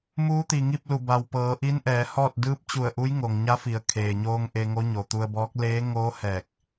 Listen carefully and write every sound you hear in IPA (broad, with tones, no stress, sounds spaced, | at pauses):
m uː˧˥ t̪ i˩ ŋ i˥˨ p̚ l u˧˩ b a˩ w p ɤː˩˧ ʔ i˧˥ n ʔ ɛː˩˧ h ɔː˥˨ t̚ d ɯː˧˥ p̚ t͡ɕ u˧˩ ə̯ ʔ u˧˥ j ŋ o˩ ŋ ɲ a˧˥ f i˩˧ ə̯ kʰ eː˩ ɲ oː˧ ŋ ʔ e˧ ŋ o˧˥ ɲ o˩ t̪ u˧ ə̯ b ɔː˧˥ k̚ l eː˧˥ ŋ oː˧˥ h ɛː˧˩ k̚